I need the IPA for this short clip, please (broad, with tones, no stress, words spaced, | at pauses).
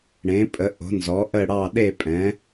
ɽẽ˩˥pʼə˩˥ʔo̤˩˥nzɔ˩˥ ʔə˥˨ɽɑ˥˨ ɗe˥˨pʼɛ̃˩˥